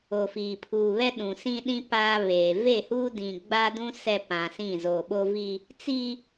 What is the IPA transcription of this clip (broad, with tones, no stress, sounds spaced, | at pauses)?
o˨ f iː˨ pʰ uː˨ β ɛ˦ ɗ ũ˨ s ĩ˦ ɗ ĩ˦ p aː˦ β eː˨ v e˦˨ h uː˦ d ĩ˨ ɡ͡b a˦ d ũ˦ s ɛ˦ p ã˨ s ĩ˦˨ z oː˨ ɓ o˦ v i˦ | t͡s i˦